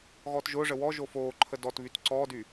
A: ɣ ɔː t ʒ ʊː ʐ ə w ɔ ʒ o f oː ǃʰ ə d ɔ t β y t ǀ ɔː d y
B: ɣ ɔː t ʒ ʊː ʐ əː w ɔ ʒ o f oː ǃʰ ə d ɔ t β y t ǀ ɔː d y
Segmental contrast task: A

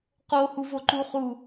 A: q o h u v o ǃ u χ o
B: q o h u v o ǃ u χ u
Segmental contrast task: B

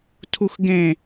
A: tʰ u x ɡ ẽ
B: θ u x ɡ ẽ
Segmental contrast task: A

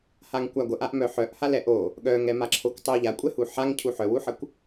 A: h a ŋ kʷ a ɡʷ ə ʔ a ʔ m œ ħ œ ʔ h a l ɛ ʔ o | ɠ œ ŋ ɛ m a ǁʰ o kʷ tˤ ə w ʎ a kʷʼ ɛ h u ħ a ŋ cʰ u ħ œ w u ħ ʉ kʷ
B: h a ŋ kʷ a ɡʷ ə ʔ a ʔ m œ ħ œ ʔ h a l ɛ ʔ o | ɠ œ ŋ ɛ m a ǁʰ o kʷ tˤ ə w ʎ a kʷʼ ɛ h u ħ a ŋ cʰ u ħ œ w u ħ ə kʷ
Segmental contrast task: B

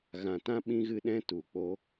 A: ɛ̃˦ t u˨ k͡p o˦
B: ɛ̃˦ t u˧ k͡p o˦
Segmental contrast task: A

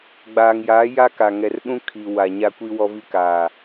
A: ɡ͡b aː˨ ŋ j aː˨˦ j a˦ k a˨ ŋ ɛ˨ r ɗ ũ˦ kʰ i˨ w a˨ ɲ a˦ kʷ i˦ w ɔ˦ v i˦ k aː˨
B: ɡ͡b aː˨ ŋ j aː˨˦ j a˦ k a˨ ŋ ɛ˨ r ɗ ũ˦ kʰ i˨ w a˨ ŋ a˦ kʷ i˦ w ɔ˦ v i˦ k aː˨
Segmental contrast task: A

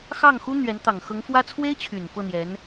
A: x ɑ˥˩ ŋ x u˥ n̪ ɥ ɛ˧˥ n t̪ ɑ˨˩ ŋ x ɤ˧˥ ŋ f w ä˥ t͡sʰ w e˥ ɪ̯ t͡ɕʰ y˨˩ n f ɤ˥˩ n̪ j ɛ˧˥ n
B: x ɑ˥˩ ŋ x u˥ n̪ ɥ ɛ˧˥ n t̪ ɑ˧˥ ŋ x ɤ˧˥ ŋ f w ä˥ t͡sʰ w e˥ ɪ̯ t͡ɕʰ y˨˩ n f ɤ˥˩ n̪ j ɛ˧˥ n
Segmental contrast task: A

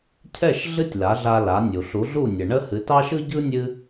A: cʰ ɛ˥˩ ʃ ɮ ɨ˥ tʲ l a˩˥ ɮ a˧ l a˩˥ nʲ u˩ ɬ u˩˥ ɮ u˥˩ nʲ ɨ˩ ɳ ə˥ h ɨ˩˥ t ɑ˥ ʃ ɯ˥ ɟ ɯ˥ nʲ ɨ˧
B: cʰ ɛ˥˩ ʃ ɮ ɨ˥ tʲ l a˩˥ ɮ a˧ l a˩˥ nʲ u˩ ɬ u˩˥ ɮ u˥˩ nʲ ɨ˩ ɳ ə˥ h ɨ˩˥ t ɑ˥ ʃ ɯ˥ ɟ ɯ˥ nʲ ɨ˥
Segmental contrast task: B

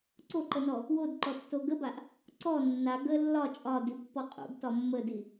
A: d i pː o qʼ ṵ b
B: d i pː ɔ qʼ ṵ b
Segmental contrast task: B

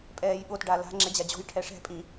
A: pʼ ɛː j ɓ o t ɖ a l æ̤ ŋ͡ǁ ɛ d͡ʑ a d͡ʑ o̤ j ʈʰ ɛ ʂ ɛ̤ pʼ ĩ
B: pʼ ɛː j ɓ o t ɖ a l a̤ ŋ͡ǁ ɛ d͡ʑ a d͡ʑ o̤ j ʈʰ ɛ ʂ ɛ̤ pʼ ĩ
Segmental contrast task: B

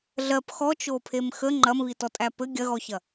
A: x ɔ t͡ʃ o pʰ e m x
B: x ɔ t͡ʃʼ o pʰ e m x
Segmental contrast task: A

